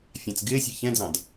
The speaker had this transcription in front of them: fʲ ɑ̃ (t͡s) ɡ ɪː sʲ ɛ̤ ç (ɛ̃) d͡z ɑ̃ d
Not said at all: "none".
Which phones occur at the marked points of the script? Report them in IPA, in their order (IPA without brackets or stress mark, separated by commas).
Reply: t͡s, ɛ̃